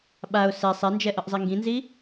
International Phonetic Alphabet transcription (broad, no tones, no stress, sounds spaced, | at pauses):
ɓ a ʊ̯ s ɛ sˤ ɛ n d͡ʒ ɛ ʔ ʌ ʔ zˤ i ŋ ɡ ĩ n z i